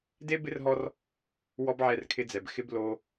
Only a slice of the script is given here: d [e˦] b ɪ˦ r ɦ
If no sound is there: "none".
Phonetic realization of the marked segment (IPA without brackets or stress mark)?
e˦